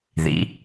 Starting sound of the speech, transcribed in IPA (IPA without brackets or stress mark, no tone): ð